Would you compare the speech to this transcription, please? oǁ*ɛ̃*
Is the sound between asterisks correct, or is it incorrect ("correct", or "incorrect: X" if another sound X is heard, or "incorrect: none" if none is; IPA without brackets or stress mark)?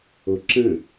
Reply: incorrect: ə̃